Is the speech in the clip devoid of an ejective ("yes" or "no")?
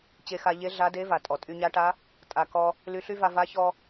no